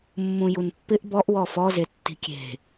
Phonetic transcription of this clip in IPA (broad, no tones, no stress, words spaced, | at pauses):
mːũjunpːɪʔ bɔʔ wɔfɔze tːi̤kʲe̤